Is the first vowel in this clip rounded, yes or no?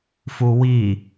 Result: yes